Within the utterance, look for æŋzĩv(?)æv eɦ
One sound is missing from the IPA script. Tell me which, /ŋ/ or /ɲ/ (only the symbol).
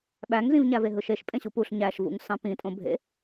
ɲ